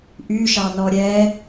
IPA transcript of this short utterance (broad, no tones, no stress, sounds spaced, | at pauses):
ʔ y ʃ ɑ n ɔ ɾʲ ɛ